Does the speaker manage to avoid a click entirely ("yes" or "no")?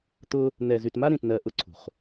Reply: no